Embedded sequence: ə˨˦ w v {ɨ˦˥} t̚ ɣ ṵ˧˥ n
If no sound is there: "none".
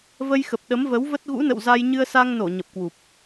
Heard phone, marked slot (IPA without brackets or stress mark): ə˦˥